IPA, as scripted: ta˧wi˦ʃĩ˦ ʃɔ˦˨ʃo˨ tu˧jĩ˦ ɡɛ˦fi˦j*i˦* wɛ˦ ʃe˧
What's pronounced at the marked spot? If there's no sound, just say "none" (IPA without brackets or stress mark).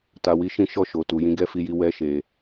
i˦